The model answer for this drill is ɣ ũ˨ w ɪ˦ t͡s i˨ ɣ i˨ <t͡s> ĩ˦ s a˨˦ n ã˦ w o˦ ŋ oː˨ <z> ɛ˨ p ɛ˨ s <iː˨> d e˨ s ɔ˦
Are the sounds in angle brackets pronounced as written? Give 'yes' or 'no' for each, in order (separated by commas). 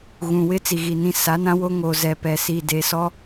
no, yes, yes